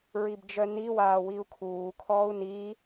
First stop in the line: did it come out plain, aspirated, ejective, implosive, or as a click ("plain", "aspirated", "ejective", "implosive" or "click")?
plain